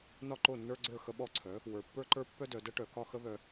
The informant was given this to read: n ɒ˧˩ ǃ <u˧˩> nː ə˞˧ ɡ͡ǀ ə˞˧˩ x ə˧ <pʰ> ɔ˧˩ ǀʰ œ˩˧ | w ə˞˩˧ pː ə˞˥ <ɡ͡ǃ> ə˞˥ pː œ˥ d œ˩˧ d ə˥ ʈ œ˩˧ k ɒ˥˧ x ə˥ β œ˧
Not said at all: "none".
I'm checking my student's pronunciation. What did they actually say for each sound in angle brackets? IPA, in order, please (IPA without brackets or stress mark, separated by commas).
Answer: o˧˩, ɓ, ǃ